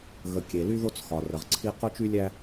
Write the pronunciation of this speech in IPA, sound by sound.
ɣ ə˨ kʲ e˨ l y˦ ð o˦ t͡s x ɒ˨ r ə˨ ʁ ǀʰ i˦ q o˦ t͡ʃ y˦ lʲ æ˦

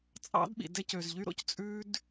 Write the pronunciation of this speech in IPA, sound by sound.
t͡sʼ ɑ̰˦ d ɓ ḭ˨ d ɛ˦ c ø˨ z ʎ y˦ ɾ o̰˦ c t͡sʼ ʉ˦ d

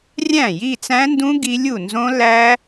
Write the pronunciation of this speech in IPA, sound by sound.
rʲ æ̃˥˩ j i˥˧ t͡s æ̃˦˥ n d ũ˦˥ ɡ i˦˥ lʲ u˥˩ n z õ˦˥ l æ˦˥

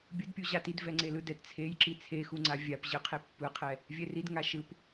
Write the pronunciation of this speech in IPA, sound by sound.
bʲ ɯ d pʲ u ʑ a t i d v ɛ ŋ͡ǀ e l ɯ d ɛ t t͡sʰ e j ǁ i t͡sʰ e x u ŋ͡ǀ a vʲ a p ʑ ɯ qʰ e pː ɯ qʰ ɛ | vʲ ɛ r i d ŋ a ʃ ɯ p

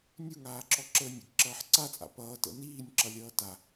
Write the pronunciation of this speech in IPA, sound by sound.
nʲ u ŋ aː ǁ ɔ ǁ əː nʲ ə̰ ɡ ǁ ʌː ħ ǀ a t͡sʼ a̰ p ʌː t ə̰ n iː nʲ ǁ ʌ lʲ ʌː t a

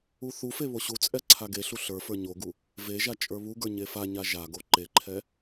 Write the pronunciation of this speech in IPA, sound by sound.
u θ u f e β o ɕ u t͡sʼ ɛ ǀʰ a ɡ e ɬ u ɬ ə˞ f ə˞ ɲ o ɡ u | v e ʒ a t͡ʃʼ ə˞ β u ɡ ə˞ ɲ e f a ɲ a ʒ a ɡ o ǃ e ǃʰ ɛ

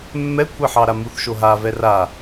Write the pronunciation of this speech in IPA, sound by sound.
mː ɛ kʷʰ e ħ ɑ ɾ a m u θ ʃ o ɦ a v ɛ r a

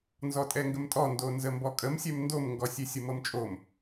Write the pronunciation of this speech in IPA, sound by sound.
n z ɔ tʼ ɛ ŋ ɡ ə m tʼ ɔ n d o n z ə m b ɔ kʼ ə m sʲ ɛ m n d o m ŋ ɡ ɔ sʲ e sʲ ə m ɤ m t͡ʃʼ o m

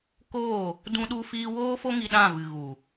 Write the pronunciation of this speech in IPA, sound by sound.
k oː˦˨ | d ũ˦ ɗ u˦ f iː˦ w oː˦ f o˦ ŋ i˧ ɗ ã˦˨ v ɨ˨ ɣ u˨

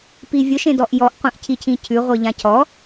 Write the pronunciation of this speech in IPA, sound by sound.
p i vʲ ʊ ʃ ẽ d ɔ ʔ j ɔ ʔ qʷ ẽ ʔ cʰ i cʰ ĩ cʰ ʉ ʁʷ i ʎ ã cʰ ɔ

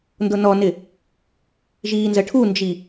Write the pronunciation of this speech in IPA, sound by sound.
n d ʊ n ɔ n ɪ | ʒ iː n z ə ʈʰ u n d͡ʒ i

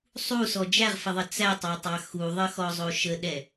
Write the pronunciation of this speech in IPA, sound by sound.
sˤ u s ɔ d͡ʒ æ ʁ f ə ðˤ ə t͡s æ tˤ ɑ tˤ ɑ x u ðˤ ə x ɔ zˤ o ʃ ə ɗ ɛ

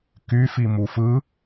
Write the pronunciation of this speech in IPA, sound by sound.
k y f i m u f ɯ

